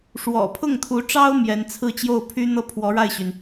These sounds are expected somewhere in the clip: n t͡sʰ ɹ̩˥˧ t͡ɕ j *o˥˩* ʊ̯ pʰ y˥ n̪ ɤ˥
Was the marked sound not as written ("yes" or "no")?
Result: no